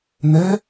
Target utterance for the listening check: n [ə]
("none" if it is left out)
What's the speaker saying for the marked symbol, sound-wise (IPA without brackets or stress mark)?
ɛ